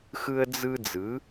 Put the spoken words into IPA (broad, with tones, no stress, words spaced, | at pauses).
xɯ˦ə̯d͡zɯ˦ d͡zɯ˨˦